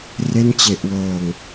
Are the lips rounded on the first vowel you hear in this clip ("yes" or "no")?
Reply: no